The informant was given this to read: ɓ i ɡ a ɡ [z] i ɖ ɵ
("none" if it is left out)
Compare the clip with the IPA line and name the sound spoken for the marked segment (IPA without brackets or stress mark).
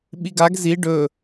z